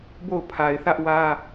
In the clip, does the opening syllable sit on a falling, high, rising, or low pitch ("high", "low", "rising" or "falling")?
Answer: falling